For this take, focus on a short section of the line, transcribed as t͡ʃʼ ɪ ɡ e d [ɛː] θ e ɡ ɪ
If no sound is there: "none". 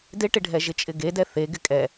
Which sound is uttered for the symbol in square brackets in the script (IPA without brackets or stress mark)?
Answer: ɛ